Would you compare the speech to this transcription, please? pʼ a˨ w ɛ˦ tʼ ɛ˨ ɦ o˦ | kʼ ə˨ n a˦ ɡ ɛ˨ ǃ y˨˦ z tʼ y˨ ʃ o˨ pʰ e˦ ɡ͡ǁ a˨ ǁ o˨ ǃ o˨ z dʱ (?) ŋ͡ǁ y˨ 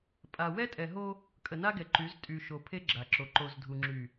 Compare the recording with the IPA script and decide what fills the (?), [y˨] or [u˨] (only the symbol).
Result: u˨